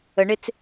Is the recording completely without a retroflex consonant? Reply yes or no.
no